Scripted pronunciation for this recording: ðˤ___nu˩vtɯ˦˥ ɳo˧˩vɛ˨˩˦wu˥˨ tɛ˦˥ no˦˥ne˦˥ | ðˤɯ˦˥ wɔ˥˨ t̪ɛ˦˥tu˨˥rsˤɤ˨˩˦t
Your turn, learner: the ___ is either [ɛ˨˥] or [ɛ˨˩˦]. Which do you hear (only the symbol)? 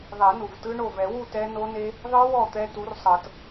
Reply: ɛ˨˩˦